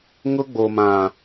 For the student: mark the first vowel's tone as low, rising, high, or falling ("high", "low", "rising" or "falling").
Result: high